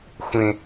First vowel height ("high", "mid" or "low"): mid